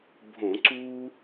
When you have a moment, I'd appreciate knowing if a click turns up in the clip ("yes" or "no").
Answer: yes